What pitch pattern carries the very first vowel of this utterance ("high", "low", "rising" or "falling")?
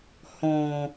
low